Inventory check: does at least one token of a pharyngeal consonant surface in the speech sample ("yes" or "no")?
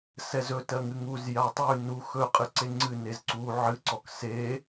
yes